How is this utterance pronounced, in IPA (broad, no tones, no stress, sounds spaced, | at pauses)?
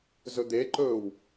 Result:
z ɵ d̪ e ǃ ɵː w